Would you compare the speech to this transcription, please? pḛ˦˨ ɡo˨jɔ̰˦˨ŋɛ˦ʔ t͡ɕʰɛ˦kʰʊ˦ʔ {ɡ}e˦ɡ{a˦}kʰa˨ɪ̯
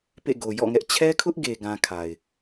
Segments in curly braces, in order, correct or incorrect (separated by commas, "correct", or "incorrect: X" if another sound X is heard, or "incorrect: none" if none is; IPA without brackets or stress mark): correct, incorrect: ã˦